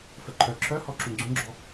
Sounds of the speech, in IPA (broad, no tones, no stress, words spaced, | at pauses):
fəǃʰœ ǁʰœhɔ ǁũɡ͡ǀũɡ͡ǁɔ